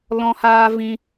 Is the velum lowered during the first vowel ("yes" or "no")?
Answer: yes